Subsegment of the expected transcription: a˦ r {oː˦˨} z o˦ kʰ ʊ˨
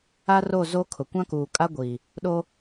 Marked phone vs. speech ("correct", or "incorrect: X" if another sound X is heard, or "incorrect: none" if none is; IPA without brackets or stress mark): incorrect: o˦˨